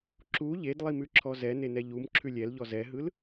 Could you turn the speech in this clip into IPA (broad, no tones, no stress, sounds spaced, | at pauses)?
ǁ u ʎ e d lˠ i m ʉ ǁʰ ɔ z ɛ n e n ɛ ʎ u m ǁʰ ʉ lʲ ɛ l ʎ ɔ z ɛ ɦ ɯ l